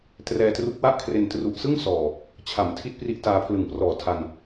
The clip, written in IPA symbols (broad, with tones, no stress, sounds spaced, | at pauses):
t r ɛː˧ t r u˦˥ k̚ w a˥˩ ʔ kʰ r e˧ n t r u˨˩ ʔ s ɯ˥˩ ŋ s ɔː˨˩ | t͡ɕʰ a˩˦ m tʰ i˦˥ t̚ p r i˦˥ ʔ t aː˧ pʰ l ɯ˨˩ ŋ p r ɔː˨˩ tʰ a˧ n